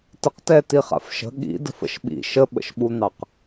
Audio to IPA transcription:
təqtɛ tiχa̰fʃə̤ ɠḭ də̤fə̰ʃɓḭ ʃəɓə̰ʃɓun̪ɑq

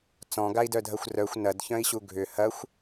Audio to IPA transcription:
t͡sɔ̃ɡai̯dœdʱɐxʷ rœxʷ nɐdçœ̃i̯ɕu ɡʱʏ hɐxʷ

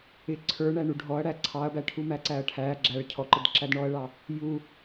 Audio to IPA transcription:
ɪ ǀʰə˞ ɳæɳuɖʱɔɐ̯ ɽæǀʰɑɐ̯bæʈʰu mæǀæɐ̯ʈʰæ ɡ͡ǁæɭ cʰɔǃɪd ǁædɳɔɐ̯ɭɑ | ju

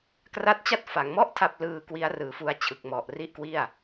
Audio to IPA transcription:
kra˦˥t̚t͡ɕa˥˩t̚ fa˩˦ŋmɔ˦˥ʔ tʰa˥˩p̚ lɯː˧ kwi˦˥a̯rɯː˨˩fu˧a̯ t͡ɕʰɯ˨˩k̚mɔ˨˩ʔri˦˥ʔkwi˥˩a̯

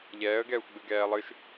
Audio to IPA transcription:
ʎɛːə̯ɡɛːxʷ ɡ͡bɨɡɛːlˠɨʃ

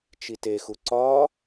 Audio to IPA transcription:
t͡ʃitexu ǀɒ

